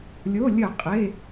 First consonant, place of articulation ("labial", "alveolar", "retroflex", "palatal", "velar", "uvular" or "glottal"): alveolar